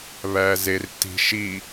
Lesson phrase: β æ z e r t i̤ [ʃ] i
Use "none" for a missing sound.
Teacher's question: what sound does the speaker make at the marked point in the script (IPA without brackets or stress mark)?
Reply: ʃ